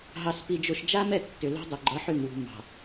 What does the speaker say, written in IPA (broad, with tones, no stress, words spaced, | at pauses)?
ɦɑ˨s pi˨d͡ʒo˨ʃ d͡ʒa˦mɛ˦˨ tːʏ˨lo̤˦dˤʏ˨ ɡ͡ǃʌ˨˦ħʏ˨ŋwṳ˨ mɑ̤˨